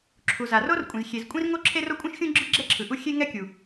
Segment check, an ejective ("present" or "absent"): present